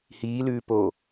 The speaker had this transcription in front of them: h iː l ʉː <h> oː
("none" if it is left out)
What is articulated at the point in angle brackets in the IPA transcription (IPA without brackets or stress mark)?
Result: p